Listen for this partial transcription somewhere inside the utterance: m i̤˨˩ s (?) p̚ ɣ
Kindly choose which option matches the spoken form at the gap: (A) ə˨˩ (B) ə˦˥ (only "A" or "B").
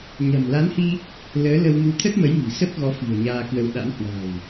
B